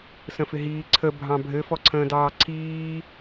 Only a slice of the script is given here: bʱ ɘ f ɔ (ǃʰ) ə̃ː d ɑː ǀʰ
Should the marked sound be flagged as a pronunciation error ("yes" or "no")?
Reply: yes